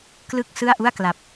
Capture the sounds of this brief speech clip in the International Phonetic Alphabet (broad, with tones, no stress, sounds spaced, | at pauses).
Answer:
k l ɯ˥˩ k̚ s ɯ˥˩ a̯ ʔ u˥˩ a̯ k l a˨˩ p̚